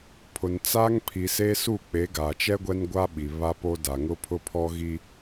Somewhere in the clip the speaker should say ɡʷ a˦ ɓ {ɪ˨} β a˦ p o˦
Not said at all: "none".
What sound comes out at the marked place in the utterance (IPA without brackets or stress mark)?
i˨